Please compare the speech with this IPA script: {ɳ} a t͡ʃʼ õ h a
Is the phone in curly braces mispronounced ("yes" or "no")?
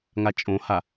yes